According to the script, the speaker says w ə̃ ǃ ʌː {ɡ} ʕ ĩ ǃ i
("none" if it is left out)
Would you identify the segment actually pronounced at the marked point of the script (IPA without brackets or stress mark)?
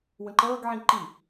ɡ